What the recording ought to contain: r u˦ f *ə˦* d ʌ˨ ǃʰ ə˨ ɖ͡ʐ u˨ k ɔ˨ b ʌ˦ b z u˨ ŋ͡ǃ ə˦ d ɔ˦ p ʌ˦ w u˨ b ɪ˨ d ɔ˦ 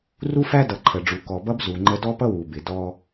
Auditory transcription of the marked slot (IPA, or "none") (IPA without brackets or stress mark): æ˦